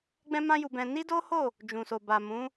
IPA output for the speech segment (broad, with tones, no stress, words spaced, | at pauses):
ɡ͡bɛ̃˦mã˦ju˧bɛ̃˧ ni˦do˦ho˦˨ | d͡ʒũ˨so˨ ba˨mũ˨˦